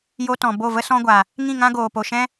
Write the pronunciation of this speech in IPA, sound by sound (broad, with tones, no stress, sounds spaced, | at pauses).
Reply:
j o˧ t ɔ̃˨ b o˦˨ v ə˦ s ɔ̃˧ ɡʷ a˨ | ŋ ĩ˦˨ ŋ ã˦ ɡ oː˨ p o˨ ʃ ɛ̃˦